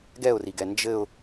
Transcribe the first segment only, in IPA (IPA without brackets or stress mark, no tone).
ɡ